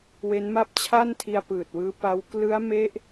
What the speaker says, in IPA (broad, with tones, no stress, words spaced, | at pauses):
we˦˥nma˥˩p̚t͡ɕʰa˥˩ntʰi˧a̯ pɯː˨˩t̚wɯː˦˥pa˦˥w klɯ˦˥a̯me˦˥ʔ